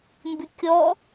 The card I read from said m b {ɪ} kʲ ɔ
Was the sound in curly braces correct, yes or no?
yes